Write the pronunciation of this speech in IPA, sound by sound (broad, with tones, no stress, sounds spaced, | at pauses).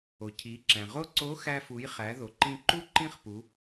o˩ cʰ i˩˧ ǁ æ̃˩ ʁ o˥ ǀ o˧˥ x æ˧ f u˩˧ j χ æ˩˧ ð o˩ ǃ ĩ˧ ǃ u˥ ǃ ĩ˥ χ p u˩˧